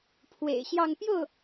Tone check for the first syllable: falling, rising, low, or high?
low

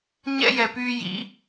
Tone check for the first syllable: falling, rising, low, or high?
high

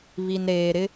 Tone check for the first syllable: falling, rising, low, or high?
low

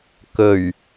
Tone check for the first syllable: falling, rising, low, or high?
low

